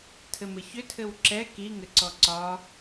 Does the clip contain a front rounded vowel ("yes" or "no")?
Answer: yes